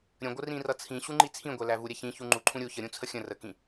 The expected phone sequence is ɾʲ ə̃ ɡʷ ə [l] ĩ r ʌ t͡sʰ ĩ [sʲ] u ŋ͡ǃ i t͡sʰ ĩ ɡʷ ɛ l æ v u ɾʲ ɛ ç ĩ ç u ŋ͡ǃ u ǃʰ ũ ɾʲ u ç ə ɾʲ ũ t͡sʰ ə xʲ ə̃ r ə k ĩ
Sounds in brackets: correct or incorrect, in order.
incorrect: r, incorrect: ɕ

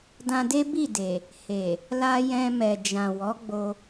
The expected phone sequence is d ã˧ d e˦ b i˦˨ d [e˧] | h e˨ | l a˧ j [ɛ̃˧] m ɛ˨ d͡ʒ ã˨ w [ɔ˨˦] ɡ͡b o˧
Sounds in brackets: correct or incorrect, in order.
incorrect: e˨, correct, correct

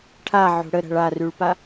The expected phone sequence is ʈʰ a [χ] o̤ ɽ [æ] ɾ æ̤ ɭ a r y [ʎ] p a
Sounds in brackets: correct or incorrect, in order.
incorrect: ʕ, incorrect: ə, incorrect: ɭ

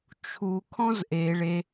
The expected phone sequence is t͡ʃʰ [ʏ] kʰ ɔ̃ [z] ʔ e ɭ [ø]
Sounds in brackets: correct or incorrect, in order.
incorrect: u, correct, incorrect: e

